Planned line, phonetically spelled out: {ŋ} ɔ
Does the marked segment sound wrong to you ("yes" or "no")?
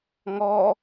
no